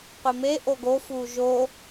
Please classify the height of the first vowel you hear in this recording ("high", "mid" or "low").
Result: high